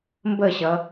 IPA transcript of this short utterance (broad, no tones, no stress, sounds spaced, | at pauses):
m b ə ɕ ʌ